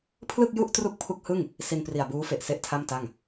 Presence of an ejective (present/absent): absent